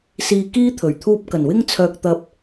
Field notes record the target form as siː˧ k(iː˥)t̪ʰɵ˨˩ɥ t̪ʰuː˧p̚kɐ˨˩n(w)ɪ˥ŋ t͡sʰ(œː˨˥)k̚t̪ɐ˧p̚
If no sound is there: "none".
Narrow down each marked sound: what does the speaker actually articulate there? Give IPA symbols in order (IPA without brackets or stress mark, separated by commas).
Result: iː˥, w, œː˧